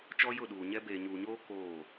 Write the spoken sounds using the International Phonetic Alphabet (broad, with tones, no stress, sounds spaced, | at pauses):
t͡ʃ ɔ˦ j ʊ˦˨ ɗ uː˨ ɲ ɛ˦ b eː˨ ɲ uː˨ ɲ oː˦ k oː˦˨